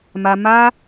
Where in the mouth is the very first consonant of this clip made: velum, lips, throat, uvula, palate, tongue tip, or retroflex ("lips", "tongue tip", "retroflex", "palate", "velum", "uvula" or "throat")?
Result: lips